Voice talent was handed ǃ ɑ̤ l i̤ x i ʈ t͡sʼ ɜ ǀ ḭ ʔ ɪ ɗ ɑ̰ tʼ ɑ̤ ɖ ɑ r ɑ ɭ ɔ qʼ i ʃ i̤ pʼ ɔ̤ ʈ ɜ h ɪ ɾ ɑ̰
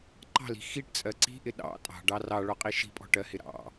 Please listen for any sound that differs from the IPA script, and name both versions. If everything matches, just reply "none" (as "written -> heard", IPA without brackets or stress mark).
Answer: ḭ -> i̤